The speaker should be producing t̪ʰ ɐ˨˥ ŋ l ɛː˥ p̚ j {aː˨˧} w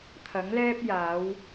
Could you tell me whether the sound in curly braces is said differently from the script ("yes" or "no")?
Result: no